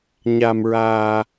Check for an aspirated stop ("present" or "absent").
absent